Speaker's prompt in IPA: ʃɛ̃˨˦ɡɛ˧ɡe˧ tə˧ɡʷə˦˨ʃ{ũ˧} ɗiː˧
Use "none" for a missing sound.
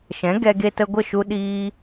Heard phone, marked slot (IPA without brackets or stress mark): u˧